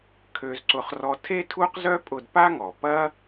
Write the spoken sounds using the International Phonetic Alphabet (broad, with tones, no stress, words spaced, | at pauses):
kʰø˧zǀʊ˧χ rɔ˧tʰe˥ tʰu˥qzœ˥pʼʊ˧d pa˥ŋɔ˩pɐ˥